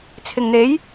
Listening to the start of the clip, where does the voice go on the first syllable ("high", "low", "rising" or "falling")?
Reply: low